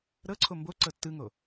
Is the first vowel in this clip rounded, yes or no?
no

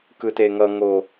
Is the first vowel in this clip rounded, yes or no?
no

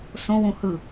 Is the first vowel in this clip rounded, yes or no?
yes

